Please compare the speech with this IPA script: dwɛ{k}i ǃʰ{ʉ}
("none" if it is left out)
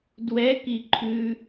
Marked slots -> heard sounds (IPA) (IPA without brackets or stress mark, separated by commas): k, ʉ